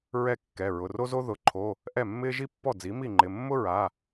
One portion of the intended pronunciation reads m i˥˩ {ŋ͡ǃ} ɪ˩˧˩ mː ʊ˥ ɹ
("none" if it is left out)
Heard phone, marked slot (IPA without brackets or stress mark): ŋ͡ǃ